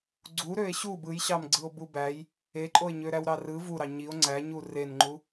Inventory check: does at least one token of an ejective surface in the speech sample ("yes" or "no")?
yes